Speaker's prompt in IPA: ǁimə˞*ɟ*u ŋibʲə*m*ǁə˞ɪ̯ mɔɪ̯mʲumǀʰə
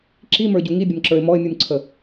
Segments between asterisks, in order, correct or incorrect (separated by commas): correct, correct